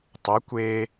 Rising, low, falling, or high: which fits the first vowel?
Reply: rising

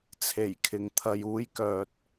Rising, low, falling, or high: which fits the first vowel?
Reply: low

